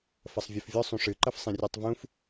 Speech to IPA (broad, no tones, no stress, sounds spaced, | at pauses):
f ɐ sˤ vʲ ɐ f vʲ ʊ sˤ ũ ʂ ɨ ǃ ɐ f sˤ ĩ rʲ e tˤ v ũ f